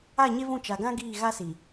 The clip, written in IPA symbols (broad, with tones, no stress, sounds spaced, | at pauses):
a˦˨ ɲ e˦ v ũ˦˨ t͡ʃ a˨ ɡ ã˦ ɡ iː˦˨ ɣ a˦ s i˨